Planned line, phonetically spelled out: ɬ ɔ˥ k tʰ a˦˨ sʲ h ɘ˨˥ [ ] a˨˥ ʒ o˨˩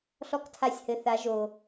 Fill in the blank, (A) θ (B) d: A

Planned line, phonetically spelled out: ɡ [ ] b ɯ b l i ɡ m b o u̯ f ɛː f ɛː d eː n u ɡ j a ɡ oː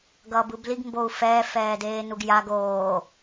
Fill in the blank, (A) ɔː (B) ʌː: B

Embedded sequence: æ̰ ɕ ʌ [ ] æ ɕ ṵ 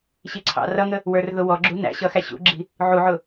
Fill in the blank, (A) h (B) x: B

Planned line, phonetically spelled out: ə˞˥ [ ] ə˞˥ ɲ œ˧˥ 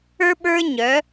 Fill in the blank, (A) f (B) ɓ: B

